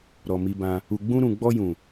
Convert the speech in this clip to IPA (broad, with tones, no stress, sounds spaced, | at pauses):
ɾ ɔ˨ m i˧ b ã˧ | u˨ ɡ͡b ũ˧ ɾ ũ˨ ɡ͡b ɔ˧ j ũ˨